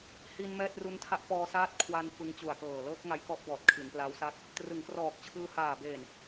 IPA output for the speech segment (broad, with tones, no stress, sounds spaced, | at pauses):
h i˧ n m ɛː˥˩ t̚ r u˦˥ n tʰ a˥˩ ʔ p ɔː˧ s aː˦˥ t̚ kʰ w a˧ n f ɯ˧ ŋ t͡ɕ u˨˩ a̯ k ɤː˨˩ l ɤː˦˥ k̚ ŋ a˧ j k ɔ˦˥ ʔ b ɔː˨˩ t̚ kʰ i˩˦ n p l a˦˥ w s a˥˩ k̚ | t r ɯ˩˦ ŋ k r ɔː˨˩ k̚ t͡ɕʰ ɯː˧ h aː˨˩ b eː˨˩ n